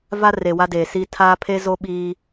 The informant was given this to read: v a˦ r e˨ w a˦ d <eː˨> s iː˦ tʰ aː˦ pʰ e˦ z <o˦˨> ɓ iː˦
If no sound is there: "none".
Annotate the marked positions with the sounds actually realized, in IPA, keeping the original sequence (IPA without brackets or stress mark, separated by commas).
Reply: eː˨, o˦